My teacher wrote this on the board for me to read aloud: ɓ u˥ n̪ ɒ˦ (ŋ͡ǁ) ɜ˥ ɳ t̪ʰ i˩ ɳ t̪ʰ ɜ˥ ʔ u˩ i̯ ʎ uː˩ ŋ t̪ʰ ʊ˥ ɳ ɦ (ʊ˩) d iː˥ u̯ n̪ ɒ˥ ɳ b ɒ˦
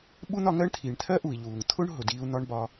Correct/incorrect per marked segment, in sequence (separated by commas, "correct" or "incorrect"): incorrect, correct